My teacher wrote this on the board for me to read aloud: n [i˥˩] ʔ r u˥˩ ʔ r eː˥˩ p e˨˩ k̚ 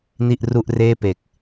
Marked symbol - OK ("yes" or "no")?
yes